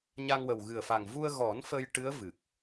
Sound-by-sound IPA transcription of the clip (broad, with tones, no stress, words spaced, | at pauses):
ɲa˧ŋwə˨˩w ɣɨ˨˩ə̯fa˨˩ŋvu˧ə̯ ɣɔ˨˩˦n fə˧jʈɨ˧˥ə̯ vɨ˨˩k̚